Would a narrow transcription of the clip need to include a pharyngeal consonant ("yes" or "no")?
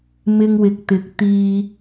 no